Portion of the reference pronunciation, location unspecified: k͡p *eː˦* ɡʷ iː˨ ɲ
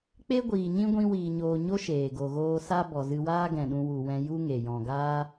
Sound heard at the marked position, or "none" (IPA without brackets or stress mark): e˦